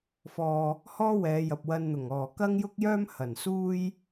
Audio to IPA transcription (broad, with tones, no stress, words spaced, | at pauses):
fɔː˨ | hɔː˥wɛː˨˧ jɐ˨p̚wɐ˧nn̪ʊ˨˩ŋɔː˨˩ kɐ˥ŋjʊ˥k̚jœː˥mhɐ˨˩n suː˥j